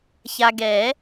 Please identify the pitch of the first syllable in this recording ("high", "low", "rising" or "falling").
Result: low